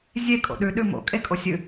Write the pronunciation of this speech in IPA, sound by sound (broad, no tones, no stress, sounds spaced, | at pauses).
zʲ e kʼ o̰ ɗ ʉ ɗ ʉ m o̰ kʼ e kʼ o sʲ ɨ